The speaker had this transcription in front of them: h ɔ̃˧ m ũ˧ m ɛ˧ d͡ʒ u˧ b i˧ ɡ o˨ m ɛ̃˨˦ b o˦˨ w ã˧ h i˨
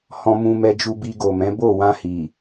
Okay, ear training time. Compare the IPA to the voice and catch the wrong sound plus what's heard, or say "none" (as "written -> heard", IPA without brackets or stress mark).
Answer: none